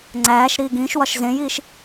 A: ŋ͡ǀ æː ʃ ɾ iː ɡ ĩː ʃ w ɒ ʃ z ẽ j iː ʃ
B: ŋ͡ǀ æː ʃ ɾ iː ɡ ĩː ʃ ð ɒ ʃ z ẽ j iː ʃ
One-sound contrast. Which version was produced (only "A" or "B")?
A